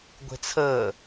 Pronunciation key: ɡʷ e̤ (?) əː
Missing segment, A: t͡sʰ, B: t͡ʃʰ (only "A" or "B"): A